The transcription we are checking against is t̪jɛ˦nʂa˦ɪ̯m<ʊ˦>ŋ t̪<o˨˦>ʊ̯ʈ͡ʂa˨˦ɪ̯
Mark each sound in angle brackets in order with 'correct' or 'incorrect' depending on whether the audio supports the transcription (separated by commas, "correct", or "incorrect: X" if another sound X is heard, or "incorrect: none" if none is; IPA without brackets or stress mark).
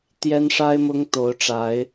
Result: correct, correct